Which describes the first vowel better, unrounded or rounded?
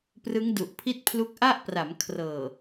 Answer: unrounded